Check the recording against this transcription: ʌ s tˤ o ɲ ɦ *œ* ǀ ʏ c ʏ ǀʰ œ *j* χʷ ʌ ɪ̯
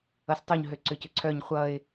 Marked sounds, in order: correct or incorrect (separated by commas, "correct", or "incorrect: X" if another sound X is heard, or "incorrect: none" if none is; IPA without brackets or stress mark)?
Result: incorrect: ø, incorrect: ɲ